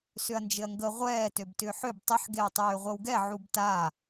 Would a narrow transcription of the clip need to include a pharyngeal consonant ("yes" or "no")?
yes